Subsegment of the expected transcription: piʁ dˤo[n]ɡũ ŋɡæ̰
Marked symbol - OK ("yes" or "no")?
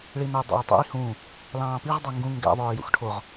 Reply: no